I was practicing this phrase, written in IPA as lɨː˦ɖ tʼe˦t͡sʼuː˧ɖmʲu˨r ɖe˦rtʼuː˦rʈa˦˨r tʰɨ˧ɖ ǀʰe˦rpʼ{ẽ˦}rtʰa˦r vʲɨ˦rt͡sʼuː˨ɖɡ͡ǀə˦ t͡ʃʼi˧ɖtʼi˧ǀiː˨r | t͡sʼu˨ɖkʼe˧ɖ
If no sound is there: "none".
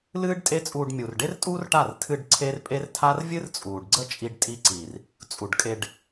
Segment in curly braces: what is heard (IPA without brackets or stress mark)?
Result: e˦